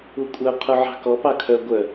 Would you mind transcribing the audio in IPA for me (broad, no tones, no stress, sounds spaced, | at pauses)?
u kʷʼ œ qʰ u ʕ ɑ̤ k ɔ p ɑ kʰ œ ɡʷ œ